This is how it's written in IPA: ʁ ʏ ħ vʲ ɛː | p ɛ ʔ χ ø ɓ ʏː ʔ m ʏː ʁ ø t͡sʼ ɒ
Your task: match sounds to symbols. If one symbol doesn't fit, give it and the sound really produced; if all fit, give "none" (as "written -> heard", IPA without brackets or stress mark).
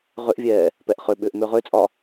ħ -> ʔ